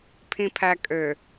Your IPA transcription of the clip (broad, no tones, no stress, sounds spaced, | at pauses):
pʰ ĩ pʰ æ kʼ ø